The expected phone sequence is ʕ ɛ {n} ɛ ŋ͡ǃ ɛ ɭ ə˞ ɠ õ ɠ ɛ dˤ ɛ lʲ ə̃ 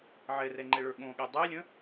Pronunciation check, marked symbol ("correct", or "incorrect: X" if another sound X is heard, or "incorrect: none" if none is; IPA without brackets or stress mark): incorrect: r